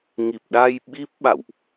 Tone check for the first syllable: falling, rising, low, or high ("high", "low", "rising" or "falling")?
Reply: low